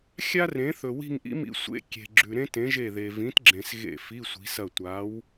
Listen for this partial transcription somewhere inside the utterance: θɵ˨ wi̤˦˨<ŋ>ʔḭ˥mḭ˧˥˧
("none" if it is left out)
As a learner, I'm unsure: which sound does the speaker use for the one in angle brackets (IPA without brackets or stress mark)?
ŋ